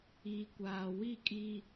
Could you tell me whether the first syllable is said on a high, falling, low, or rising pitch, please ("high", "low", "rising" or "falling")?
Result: low